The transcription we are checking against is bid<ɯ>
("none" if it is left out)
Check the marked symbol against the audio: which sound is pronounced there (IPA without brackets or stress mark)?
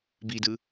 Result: ɯ